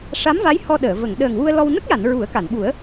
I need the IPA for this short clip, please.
ʂ a˧˥ m v a˧˥ j h ɔ˧ ɗ əː˨˩˨ v ə˨˩˨ ŋ ɗ əː˨˩ ŋ w u˧ ə̯ l ɔ˧ w n ə˦˥ k̚ j a˨˩˨ n ɹ u˨˩˦ ə̯ k a˨˩˨ n ɓ u˨˩˦ ə̯

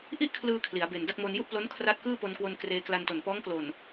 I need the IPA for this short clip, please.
ʔ i˥˩ ʔ kʰ l ɯː˧ kʰ l i˩˦ a̯ b e˨˩ n d a˥˩ k̚ m o˧ n j u˥˩ ʔ p l o˦˥ n kʰ r a˦˥ t̚ k ɯː˥˩ p o˧ n k w o˧ n k r eː˧ k l a˧ n t o˨˩ n p ɔː˦˥ ŋ k l o˨˩ n

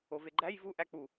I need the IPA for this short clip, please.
o v e ɡ͡ǃ æ j v u ʔ æ k͡p u

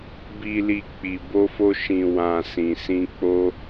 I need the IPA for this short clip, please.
b i˨ l i˨ k͡p i˨ b o˧ f o˧ ʃ ĩ˨ w ã˨ s ĩ˨ s ĩ˧ k͡p o˧

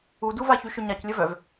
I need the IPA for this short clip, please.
u d u v a ç y ʃ ʏ ɲ a c lʲ ə v œ v

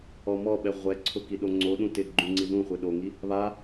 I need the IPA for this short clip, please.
ɔ m ɔ ɓ ɛ ʁʷ ɛ ǀʰ ʊ k i ɗ o ŋ͡ǀ o ɗ ũ t ɪ ɡ͡ǃ ũ ŋ͡ǀ i ð ũ χʷ e ɗ o ŋ i | β a

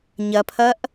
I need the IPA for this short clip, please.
ɲ ɐ pʰ ɐ ʔ

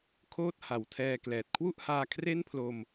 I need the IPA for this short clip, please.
kʰ oː˥˩ t̚ h a˩˦ w tʰ ɛː˧ k l ɛː˨˩ t̚ kʰ w u˥˩ ʔ h aː˧ kʰ r e˥˩ n pʰ l o˧ m

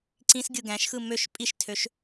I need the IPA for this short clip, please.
ǀ ĩ s ɡʲ ɯ ɡ æ̃ ʃ x ɯ m ø ʃ pʼ i ʃ tʰ ø ʃ

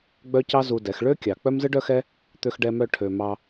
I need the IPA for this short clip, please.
ɡ͡b œ˦ c ɑ˦ z u˧ d ɛ˨˦ x ɭ ø˦ kʲ ɑ˨ k͡p œ˦ m z ɯ˦ ɖ œ˦ x ɛ˦ | t̪ ø˧ x ɖ ɛ˧ m œ˧ ʈʰ ø˧ m ɑ˧

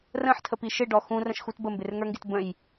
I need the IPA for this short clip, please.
r ə̃ ħ tʰ ə p i ʃ ɪ ɖ ɔ x ũ r ə̃ ʃ x u t b ə m b ɪ r ŋ ə˞ ŋ ɡ ɪ t b ə̃ j

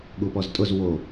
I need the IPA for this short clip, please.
ɠ u p ɔ z tʼ ʊ z w o

